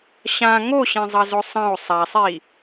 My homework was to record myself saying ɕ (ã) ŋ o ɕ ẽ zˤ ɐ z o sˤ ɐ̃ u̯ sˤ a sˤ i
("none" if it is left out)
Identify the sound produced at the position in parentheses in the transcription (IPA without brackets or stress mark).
ã